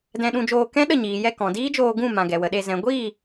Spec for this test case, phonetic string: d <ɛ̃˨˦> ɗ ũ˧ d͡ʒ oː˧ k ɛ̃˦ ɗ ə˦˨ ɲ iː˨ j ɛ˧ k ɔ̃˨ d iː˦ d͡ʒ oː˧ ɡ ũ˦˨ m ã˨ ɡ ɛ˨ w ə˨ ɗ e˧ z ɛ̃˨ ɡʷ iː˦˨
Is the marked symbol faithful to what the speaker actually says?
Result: no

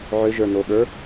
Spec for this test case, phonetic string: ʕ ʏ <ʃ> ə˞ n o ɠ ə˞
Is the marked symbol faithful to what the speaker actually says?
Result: no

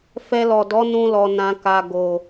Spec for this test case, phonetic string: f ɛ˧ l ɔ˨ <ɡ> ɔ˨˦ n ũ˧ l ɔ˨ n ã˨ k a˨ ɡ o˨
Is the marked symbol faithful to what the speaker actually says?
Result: no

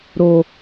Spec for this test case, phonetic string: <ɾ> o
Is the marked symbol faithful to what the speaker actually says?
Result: yes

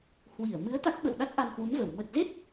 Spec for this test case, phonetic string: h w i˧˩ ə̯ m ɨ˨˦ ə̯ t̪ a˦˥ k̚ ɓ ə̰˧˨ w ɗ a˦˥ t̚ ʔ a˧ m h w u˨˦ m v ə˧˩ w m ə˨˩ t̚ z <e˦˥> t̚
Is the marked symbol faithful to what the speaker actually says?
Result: yes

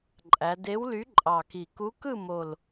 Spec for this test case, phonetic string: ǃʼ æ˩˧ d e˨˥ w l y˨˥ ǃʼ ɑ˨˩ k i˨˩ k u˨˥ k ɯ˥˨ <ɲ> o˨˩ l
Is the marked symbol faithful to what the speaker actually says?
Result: no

